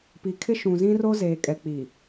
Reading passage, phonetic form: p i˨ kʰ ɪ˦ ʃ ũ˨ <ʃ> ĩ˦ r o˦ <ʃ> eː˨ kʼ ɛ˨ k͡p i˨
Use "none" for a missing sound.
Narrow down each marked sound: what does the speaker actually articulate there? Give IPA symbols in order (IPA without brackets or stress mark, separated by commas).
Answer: z, z